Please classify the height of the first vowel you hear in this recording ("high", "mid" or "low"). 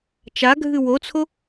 low